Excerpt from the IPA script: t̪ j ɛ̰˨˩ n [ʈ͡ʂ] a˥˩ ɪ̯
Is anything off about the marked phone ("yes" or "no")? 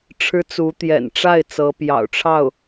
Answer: no